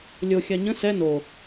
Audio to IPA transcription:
lʲ o xʲ a ɲ ə̃ s ɛ n o

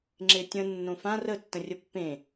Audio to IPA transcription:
ŋ͡ǁ e tʲ ə̃ nː õ f ã r ə tː ə̃ rʲ ə pː ẽ

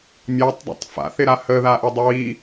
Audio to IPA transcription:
mʲ ɑ tˤ dˤ a̰ tˤ f a̰ θ ɪ ɾ a h ə ð a ʔ ɪ dˤ ə w i

